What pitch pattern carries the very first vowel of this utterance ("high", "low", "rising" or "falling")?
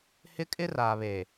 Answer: high